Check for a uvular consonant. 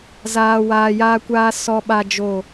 absent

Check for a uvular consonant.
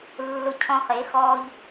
present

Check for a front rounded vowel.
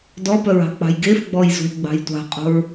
present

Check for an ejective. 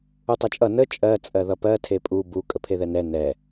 present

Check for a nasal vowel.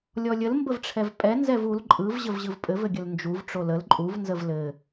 absent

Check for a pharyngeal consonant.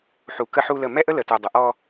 present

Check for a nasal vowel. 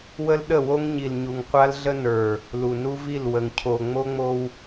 absent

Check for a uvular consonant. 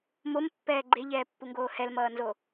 absent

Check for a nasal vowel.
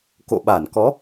absent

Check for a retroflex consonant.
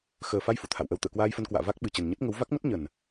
absent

